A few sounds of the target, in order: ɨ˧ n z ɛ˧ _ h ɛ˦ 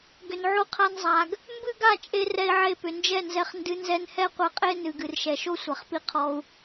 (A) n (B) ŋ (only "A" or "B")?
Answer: A